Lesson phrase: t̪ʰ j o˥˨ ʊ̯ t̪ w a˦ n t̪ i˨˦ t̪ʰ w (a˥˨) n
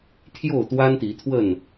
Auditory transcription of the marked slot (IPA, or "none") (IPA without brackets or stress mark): ə˥˨